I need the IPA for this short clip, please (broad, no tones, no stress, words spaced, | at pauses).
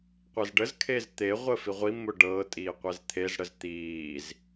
qʷezɖəzkʰeːz t̪e ʁʷəːfiʁʷimːʊ ɖɤː tʼiːqʷezt̪ʰezɽəz t̪iːz